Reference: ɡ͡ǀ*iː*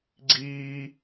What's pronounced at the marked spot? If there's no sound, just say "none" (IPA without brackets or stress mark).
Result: iː